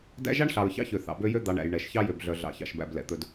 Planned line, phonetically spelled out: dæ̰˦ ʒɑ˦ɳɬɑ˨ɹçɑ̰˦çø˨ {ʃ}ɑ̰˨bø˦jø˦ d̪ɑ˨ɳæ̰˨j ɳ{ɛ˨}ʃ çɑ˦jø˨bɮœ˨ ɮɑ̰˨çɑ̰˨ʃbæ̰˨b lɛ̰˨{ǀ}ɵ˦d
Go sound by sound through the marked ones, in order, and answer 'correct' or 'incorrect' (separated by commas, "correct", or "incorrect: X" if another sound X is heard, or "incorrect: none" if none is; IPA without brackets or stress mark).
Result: incorrect: θ, correct, incorrect: t̪